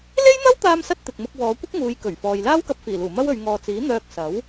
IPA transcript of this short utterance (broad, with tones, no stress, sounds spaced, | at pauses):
l e˥ j n̪ ɐ˥ w t̪ aː˧ m s ɐ˧ t̚ t̪ ɪ˨ k̚ m ʊ˧ k̚ w ɔː˨˧ kʷ ɪ˥ k̚ ŋ uː˨˧ j k ɵ˨˩ ɥ f ɔː˨ j l aː˥ w k ɐ˧ p̚ f iː˨˩ l uː˨˩ m ɐ˥ w ɵ˨˧ ɥ ŋ ɔː˨ t͡s iː˨˥ n̪ œː˧ k̚ s ɐ˨˥ w